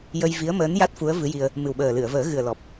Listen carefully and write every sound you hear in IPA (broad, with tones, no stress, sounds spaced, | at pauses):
j ə˧ j v i˧˥ ə̯ m əː˧˥ n j a˦˥ t̚ f u˧˥ ə̯ v ɨ˧˥ j i˧ ə̯ | m ɨ˨˩ w ɓ əː˨˩ l ɨ˨˩˨ ə̯ v əː˨˩˦ ɣ ɨ˨˩ ə̯ l ɔ˨˩ p̚